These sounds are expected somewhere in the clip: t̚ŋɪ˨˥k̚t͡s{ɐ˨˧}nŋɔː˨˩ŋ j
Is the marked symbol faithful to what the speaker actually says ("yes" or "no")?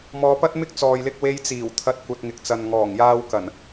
no